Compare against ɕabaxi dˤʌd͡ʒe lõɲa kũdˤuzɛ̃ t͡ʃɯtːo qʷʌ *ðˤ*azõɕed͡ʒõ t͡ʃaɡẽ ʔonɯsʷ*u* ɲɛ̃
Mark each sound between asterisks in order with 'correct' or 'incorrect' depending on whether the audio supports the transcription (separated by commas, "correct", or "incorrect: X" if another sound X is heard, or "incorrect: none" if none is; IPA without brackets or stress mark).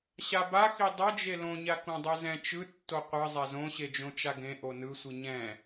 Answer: incorrect: zˤ, incorrect: ɯ